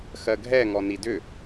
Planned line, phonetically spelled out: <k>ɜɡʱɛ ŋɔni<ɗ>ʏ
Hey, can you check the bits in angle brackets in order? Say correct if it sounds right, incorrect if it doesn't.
incorrect, incorrect

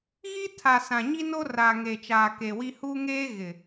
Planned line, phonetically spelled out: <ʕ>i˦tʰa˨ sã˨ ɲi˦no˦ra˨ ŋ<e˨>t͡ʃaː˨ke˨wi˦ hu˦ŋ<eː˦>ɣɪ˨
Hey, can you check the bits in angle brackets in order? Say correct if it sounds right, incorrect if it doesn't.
incorrect, correct, correct

